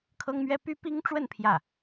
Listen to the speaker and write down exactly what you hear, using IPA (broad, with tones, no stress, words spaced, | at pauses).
kʰɤ˥ŋmɥɛ˥ py˥pi˥ŋʈ͡ʂwə˥˧n pʰjä˥˩